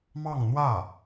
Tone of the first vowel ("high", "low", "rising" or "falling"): falling